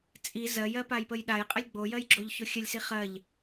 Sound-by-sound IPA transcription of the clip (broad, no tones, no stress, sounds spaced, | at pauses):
t͡sʼ i z ɜ j ɜ p a j p ə j ɗ a j qʼ ə lʲ ɡ͡b o j ɜ j ɡ͡ǁ o ʎ ç o xʲ ə lʲ s i χ ɜ ʎ